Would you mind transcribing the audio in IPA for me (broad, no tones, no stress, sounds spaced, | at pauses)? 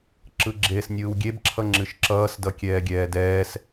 ǁ ɯ ɡ͡ǁ eː s nʲ ɯː w ɡʲ e b ǁʰ ʌ ŋ͡ǁ ɨ ʃ ǁ ʌː s d ʌ kʲ ɛː ɡʲ ɛː d ɛː s